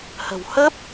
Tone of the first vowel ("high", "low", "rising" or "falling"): low